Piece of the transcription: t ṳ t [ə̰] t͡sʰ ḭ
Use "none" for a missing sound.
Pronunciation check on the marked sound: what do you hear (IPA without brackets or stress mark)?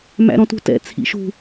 ɛ̰